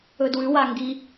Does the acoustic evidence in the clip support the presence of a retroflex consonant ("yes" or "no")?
no